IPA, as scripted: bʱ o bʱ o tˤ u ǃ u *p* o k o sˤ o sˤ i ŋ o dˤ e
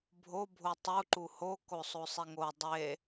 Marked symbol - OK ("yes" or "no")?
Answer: no